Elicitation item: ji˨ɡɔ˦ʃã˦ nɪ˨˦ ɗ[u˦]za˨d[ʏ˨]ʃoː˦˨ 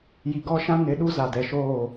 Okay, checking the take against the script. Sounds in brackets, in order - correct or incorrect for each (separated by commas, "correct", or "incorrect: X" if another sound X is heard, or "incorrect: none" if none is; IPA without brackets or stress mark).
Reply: correct, incorrect: ɛ˨